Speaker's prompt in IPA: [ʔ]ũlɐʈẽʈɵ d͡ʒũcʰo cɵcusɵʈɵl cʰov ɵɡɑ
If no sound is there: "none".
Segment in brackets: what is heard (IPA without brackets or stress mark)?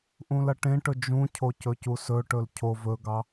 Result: ʔ